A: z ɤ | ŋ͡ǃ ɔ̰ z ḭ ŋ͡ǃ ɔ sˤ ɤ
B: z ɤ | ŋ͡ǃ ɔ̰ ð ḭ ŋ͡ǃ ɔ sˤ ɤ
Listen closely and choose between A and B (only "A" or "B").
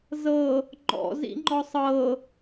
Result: A